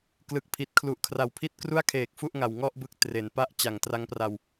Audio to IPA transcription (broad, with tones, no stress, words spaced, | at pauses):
klɯ˨˩k̚pʰi˨˩t̚ kʰlu˨˩ʔkʰra˨˩wpʰi˥˩t̚ kru˥˩a̯kʰeː˨˩k̚ fu˥˩ʔŋa˨˩w ŋɔ˥˩ʔbɯ˦˥k̚ tre˩˦npa˥˩ʔ t͡ɕa˨˩ŋtra˦˥ŋpra˧w